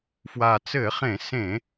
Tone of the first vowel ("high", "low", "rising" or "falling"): low